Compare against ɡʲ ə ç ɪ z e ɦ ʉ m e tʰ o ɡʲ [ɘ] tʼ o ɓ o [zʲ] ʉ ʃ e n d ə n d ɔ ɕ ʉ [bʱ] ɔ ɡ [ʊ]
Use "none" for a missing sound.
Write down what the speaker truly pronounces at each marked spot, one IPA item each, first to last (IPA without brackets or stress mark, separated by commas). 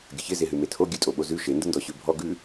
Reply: ʉ, z, bʱ, ʉ